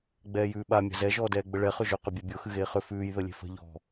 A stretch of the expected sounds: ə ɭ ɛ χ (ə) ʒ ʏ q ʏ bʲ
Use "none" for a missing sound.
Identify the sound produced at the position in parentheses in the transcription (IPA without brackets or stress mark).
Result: ʏ